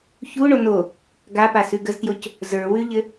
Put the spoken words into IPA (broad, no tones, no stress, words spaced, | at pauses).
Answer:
çuɳo no | ɡapasʉ ɡəztjoc | zə˞wʉʎɘ